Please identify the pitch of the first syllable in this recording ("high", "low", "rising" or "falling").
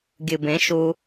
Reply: low